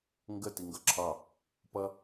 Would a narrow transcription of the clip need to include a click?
yes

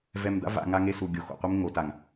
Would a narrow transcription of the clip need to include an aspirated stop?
no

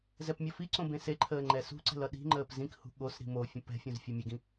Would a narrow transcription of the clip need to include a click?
yes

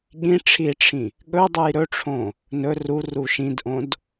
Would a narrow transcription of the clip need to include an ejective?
no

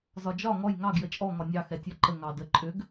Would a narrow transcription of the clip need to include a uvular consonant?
no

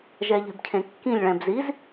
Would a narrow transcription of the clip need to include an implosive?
no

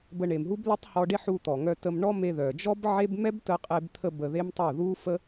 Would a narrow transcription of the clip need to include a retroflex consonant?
yes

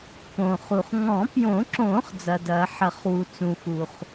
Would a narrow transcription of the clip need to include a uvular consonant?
yes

